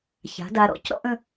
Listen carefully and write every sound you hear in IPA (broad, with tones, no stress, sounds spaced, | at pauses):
ç a̤˩˥ d a˧ ɾ ɔ̰˥˩ c ɾ ɔ̰˥ ʔ ə̃˥